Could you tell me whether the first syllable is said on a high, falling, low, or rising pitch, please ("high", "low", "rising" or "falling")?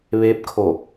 rising